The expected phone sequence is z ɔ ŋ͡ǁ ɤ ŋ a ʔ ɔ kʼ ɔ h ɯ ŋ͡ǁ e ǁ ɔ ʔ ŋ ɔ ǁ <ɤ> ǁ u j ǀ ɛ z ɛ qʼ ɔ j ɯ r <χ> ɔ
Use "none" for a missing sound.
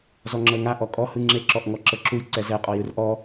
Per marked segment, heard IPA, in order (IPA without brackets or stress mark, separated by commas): ɤ, ʔ